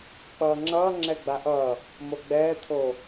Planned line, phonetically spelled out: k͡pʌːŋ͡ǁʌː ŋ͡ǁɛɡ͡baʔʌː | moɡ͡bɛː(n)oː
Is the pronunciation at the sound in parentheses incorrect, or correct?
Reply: incorrect